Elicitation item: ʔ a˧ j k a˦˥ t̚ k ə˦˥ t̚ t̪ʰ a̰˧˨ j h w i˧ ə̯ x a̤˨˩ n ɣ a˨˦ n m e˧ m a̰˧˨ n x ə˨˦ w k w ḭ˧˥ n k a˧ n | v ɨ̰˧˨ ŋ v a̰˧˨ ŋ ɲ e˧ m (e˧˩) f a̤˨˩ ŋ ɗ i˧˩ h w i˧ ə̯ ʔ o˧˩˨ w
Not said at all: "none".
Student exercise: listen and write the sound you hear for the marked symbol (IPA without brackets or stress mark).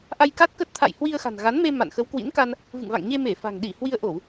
e˧˩